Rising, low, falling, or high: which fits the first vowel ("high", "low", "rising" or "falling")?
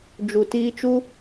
low